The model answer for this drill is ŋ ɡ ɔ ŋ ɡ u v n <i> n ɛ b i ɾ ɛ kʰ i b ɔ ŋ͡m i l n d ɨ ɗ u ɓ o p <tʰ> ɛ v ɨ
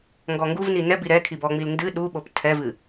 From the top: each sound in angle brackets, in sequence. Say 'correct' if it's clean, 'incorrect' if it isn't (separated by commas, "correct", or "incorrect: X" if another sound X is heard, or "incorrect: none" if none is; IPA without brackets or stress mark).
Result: correct, correct